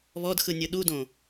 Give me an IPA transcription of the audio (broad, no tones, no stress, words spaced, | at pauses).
βɔdxɯnʲɯ ɗudõ